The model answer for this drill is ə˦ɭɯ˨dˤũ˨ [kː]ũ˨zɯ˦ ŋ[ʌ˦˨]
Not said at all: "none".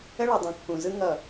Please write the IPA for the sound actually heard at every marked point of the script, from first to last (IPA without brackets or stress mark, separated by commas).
kː, ʌ˦˨